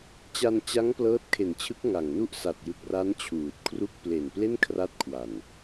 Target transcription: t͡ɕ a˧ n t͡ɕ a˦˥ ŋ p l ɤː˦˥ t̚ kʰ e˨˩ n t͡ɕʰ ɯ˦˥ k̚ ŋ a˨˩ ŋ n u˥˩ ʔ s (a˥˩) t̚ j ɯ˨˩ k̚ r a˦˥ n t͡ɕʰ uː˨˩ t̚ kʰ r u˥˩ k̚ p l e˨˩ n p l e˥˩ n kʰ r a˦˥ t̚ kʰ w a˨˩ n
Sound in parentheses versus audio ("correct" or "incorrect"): incorrect